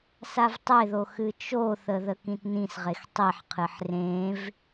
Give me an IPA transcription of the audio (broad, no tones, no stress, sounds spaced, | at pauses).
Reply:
s a v tˤ e ð o x ɨ t͡ʃ o θ ə ð ə k ĩ t n ĩ s ʁ e x tˤ i ħ qʰ ɨ ħ r ẽ v